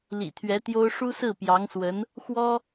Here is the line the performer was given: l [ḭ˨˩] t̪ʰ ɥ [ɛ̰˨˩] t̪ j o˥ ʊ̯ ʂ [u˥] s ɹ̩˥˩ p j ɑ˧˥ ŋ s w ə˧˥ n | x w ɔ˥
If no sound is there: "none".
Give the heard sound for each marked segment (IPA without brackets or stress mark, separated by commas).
ḭ˨˩, ɛ˧˥, u˥